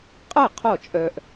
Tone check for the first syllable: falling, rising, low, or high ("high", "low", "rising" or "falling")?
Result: falling